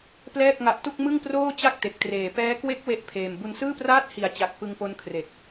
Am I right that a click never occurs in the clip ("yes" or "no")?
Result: yes